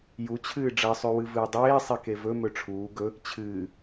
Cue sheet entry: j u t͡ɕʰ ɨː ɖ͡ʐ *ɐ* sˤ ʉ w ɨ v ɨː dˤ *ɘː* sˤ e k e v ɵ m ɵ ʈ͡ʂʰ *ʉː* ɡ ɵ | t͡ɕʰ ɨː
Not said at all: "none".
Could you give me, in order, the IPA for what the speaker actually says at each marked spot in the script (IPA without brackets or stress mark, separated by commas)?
ɐ, eː, uː